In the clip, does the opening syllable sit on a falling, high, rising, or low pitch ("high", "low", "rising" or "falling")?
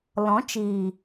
rising